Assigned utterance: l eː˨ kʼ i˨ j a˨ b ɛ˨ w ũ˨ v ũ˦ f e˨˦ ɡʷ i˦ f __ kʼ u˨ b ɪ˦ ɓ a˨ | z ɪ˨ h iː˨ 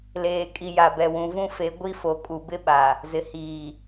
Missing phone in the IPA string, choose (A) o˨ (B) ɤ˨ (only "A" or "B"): A